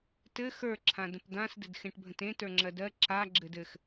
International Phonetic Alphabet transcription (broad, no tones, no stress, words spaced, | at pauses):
tɘ xə˞ ǁʰãdə̃pd̪ãs dɘdxẽʈbʱə̃tẽ tə˞ŋ͡ǁɜdɜ ǁa ɡ͡ǁɘdɘx